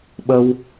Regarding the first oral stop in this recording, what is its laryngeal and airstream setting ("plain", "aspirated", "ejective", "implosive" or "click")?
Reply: implosive